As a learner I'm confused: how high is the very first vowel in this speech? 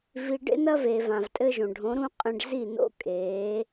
high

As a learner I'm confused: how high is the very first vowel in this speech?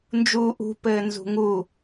high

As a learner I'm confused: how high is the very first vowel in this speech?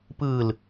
high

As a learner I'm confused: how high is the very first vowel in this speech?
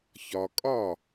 low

